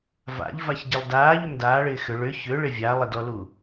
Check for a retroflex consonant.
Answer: present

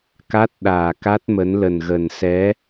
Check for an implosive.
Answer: present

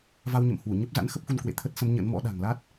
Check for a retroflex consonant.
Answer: absent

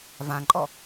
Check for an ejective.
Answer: present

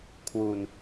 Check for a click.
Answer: absent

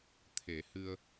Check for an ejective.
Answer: absent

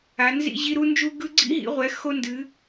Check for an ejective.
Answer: absent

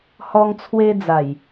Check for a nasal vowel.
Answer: absent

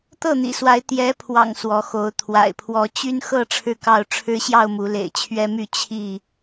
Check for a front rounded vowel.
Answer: present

